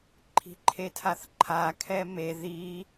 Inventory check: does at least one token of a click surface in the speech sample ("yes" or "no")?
yes